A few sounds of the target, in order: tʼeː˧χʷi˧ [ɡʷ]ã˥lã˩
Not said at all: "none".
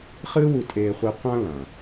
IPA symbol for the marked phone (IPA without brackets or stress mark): qʷ